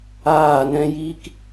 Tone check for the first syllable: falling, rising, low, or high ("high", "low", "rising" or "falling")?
falling